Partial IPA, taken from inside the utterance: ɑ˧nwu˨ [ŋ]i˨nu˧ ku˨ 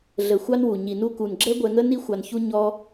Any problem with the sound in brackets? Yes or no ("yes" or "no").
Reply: yes